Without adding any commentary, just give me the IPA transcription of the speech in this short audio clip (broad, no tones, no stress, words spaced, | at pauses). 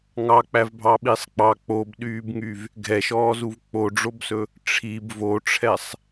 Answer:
ŋɑk͡pævbʱɑɓisˤ k͡pɑ k͡pobɗyːbŋyv | ɡʱɛʃɔːzuv k͡poɖ͡ʐobsɵ | ʈ͡ʂʰib voʈ͡ʂʰɛsˤ